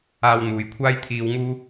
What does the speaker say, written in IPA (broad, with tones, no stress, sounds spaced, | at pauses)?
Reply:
aː˧ w n̪ uː˨ j kʷʰ aː˥ j t̪ʰ iː˧ w ŋ uː˥